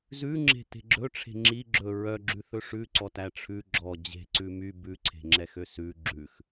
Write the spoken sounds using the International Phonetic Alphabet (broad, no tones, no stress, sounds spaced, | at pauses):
z ʉ ŋ͡ǁ e̤ t e̤ ɡ͡ǁ ɵ ʈ͡ʂʰ e̤ ŋ͡ǁ i ɡ͡ǁ ɵ ɹ œ ɡ͡ǁ ʉ θ ɵ ʂ ʉ ǀ ɔ t æ ʈ͡ʂʰ ʉ ɡ͡ǁ ɔ d͡ʑ e̤ ǀ ʉ m y b ʉ ǀʰ e̤ ŋ͡ǁ ɛ x ø s ʉ ɡ͡ǁ ʉ x